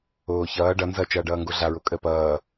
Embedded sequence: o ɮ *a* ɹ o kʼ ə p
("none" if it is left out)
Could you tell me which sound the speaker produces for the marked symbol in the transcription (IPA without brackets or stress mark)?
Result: a